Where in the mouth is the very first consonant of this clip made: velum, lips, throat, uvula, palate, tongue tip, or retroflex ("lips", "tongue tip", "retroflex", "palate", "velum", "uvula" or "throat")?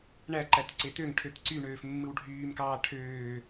retroflex